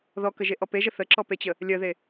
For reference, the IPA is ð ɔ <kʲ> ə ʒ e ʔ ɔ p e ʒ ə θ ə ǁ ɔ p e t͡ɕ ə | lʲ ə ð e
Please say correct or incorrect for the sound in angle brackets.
incorrect